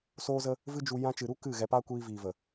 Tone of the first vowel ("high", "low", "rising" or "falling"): high